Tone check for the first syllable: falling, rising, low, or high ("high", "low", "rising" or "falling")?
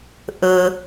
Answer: low